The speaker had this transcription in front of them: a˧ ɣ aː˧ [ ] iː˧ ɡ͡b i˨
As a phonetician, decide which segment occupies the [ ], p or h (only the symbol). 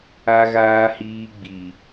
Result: h